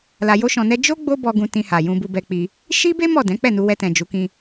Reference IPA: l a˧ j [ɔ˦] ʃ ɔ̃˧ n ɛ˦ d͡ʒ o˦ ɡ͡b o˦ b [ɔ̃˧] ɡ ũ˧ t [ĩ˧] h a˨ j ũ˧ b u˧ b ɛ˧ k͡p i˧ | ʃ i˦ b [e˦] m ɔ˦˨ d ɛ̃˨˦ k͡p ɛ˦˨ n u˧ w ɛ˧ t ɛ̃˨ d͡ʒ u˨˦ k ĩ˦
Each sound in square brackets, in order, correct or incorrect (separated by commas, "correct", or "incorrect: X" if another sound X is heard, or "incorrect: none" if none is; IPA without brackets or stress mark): incorrect: o˦, incorrect: ɔ˧, correct, correct